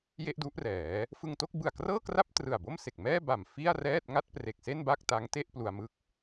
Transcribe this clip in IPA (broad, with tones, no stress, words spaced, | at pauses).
je˥˩ʔdu˦˥ʔrɛː˩˦ | fɯ˧ŋto˥˩k̚bɯ˨˩a̯ krɤː˥˩kra˥˩p̚ trɯ˨˩a̯bo˥˩mse˨˩k̚ mɛː˥˩ba˨˩m fi˥˩a̯rɛː˥˩t̚ ŋa˥˩t̚pre˨˩k̚se˥˩n ba˥˩k̚ta˦˥ŋte˥˩ʔ plu˧a̯mɯ˦˥k̚